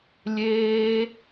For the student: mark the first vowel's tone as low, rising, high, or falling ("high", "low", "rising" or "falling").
high